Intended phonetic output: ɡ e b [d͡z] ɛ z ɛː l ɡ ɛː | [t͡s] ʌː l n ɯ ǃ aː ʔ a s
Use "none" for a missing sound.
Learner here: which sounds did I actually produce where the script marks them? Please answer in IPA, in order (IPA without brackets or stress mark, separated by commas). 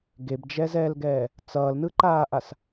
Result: d͡ʒ, t͡s